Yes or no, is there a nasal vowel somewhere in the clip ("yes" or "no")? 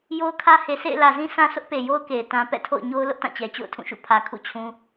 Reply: yes